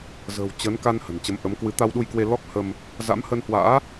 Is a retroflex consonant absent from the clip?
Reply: yes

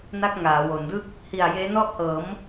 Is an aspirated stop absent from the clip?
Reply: yes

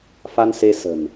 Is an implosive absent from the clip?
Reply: yes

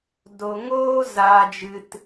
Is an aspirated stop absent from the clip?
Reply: yes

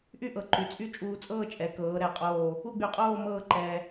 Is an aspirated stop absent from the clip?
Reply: yes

